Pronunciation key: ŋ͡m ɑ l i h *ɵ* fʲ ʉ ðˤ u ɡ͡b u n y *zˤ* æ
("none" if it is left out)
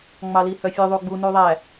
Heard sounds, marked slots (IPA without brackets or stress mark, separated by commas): œ, ðˤ